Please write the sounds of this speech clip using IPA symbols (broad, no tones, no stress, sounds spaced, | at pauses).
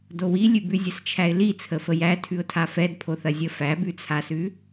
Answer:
d o w i lʲ ʉ b ʉ zʲ ə s t͡ʃʰ æ ɪ̯ l i t͡sʰ ə f ə j æ tʰ ʉ ʊ̯ tʰ a f ɛ d pʰ o θ ɐ zʲ ə f æ b ʉ t͡sʰ a s ʉ